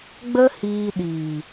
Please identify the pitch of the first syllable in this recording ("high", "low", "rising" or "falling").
high